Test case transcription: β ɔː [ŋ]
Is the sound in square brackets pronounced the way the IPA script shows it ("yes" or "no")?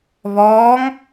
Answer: yes